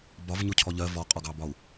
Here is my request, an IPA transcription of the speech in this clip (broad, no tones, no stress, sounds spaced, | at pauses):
b ɒ v ɲ ʊ cʰ ɔ ʎ ɜ v ɔ qʼ ɒ ɡ ɑ b ɒ u̯